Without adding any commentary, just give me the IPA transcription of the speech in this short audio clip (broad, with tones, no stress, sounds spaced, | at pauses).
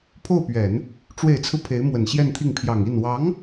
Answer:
pʰ o˥˩ ʊ̯ p ɥ ɛ˨˩˦ n | ʈ͡ʂ w e˨˩ ɪ̯ t͡sʰ ɹ̩˦ pʰ e˧˥ ɪ̯ m w ə˨˩ n ɕ j ɛ˥˧ n t̪ʰ i˥˩ ŋ pʰ j ɑ˨˩ ŋ i˥˩ n w ɑ˧˥ ŋ